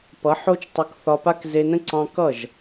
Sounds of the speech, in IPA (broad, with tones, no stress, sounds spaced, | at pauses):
p ʌ˨˦ ħ o˦ t͡ʃ tˤ ʌ˧ k θ ɒ˧ p a˦ k z e˧ n ə̃˦ ǀ ɑ̃˦ k ʌ˦˨ ʒ